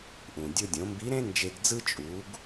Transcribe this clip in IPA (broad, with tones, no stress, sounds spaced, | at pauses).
ʔ ũ˩ dʲ o˧ dʲ õ˩˧ m b i˧˥ ɾ ẽ˥ n d͡ʒ e˧ ɡ d͡z ɯ˥ t͡ʃʼ u˩˧ ɡ